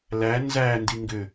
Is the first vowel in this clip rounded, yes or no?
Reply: no